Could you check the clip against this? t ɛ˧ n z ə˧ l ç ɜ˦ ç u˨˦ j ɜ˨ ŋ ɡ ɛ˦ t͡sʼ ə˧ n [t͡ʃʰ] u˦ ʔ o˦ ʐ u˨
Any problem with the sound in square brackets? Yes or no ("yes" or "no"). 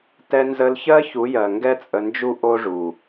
yes